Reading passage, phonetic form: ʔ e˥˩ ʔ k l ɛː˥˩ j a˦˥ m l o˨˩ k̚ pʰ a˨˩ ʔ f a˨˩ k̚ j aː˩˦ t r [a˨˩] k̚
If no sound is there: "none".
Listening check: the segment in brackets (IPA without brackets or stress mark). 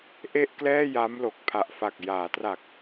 a˨˩